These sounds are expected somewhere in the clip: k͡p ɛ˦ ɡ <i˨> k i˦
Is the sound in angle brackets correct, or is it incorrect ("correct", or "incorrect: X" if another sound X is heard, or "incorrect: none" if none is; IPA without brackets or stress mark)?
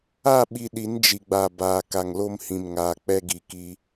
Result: correct